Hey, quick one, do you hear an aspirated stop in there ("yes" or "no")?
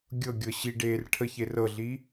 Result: yes